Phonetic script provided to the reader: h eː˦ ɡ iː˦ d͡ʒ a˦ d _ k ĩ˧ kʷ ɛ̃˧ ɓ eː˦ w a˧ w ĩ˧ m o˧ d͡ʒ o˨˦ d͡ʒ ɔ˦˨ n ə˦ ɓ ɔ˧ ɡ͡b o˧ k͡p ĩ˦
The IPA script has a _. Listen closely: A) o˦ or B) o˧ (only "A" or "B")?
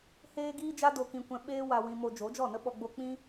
B